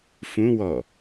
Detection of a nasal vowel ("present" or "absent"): present